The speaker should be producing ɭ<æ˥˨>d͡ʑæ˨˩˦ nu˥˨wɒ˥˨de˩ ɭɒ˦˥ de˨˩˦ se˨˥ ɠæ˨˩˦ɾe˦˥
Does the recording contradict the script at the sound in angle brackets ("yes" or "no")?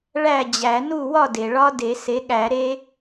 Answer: no